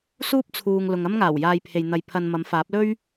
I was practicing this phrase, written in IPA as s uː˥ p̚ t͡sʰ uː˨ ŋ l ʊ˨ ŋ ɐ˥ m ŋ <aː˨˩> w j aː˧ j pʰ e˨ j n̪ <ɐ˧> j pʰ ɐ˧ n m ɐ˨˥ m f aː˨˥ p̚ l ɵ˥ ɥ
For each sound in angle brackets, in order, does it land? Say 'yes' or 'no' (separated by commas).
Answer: yes, yes